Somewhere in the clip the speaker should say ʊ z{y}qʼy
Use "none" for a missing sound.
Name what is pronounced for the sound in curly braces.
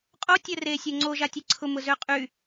ø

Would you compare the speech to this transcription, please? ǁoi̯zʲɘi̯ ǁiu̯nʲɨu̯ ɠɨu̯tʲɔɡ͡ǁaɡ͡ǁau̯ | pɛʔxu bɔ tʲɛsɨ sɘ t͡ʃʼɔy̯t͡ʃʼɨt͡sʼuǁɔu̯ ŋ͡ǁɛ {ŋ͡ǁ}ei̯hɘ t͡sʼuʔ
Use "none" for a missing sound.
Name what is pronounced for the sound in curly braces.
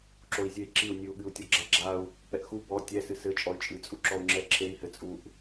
ǁʰ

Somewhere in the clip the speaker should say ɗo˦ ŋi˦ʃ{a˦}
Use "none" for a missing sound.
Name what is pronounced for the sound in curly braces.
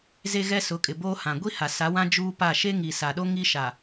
a˨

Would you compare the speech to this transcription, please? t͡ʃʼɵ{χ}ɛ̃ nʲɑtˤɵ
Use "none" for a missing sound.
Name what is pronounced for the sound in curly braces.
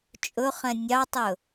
χ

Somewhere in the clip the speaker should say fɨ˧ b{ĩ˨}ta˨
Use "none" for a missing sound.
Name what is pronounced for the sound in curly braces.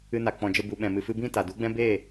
ĩ˦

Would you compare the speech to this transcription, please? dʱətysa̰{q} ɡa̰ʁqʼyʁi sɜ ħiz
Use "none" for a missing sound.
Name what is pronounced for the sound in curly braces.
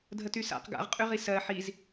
q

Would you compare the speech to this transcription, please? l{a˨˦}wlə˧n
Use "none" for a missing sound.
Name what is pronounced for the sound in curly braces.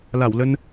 a˧˩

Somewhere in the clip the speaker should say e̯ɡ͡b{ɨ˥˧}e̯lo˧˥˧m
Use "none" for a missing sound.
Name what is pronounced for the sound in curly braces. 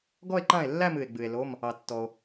ɨ˨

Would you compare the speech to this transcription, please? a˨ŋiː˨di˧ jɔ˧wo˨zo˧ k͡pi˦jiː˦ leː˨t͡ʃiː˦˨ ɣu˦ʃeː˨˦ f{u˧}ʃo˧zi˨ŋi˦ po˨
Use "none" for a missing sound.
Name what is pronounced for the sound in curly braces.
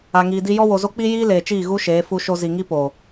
u˧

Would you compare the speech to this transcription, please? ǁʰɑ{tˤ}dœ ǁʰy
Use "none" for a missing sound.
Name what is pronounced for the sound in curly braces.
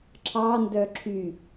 n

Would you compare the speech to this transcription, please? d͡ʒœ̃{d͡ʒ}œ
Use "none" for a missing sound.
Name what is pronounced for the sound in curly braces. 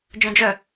d͡ʒ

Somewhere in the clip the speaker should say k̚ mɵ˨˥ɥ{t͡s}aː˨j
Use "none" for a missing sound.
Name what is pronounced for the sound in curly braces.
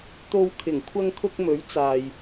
t͡s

